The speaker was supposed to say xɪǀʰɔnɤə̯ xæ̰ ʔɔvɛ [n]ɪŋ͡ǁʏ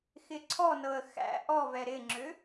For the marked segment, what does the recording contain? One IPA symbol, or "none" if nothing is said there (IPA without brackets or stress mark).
ɾ